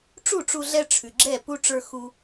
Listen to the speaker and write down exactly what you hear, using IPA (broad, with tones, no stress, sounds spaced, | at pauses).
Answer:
ʈ͡ʂ u˦˨ ʈ͡ʂ u˧ ɮ ɛ˧ ʈ͡ʂʰ ʉ˨ ɡ͡ǁ ɛ˦˨ p u˦ ʈ͡ʂ ə˞˧ x u˧